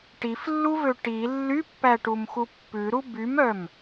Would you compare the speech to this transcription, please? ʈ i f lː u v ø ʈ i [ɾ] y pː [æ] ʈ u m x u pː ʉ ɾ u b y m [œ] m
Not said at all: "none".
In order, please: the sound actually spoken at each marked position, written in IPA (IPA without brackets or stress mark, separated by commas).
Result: lː, æ, œ